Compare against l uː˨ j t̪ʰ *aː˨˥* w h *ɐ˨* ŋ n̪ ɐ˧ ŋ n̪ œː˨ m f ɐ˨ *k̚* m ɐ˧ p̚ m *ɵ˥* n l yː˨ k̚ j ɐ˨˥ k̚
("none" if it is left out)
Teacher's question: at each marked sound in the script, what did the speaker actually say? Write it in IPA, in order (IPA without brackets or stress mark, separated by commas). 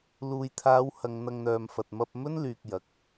aː˨˧, ɐ˨, t̚, ɵ˥